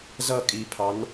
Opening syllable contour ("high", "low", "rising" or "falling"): falling